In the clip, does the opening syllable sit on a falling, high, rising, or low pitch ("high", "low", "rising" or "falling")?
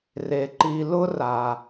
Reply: low